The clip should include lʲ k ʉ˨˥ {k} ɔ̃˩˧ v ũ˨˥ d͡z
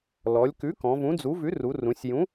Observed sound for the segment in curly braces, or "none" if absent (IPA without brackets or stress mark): k